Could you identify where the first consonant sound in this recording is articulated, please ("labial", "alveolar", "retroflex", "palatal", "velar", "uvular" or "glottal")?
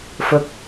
labial